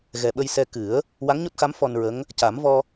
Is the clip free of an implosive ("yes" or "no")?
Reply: no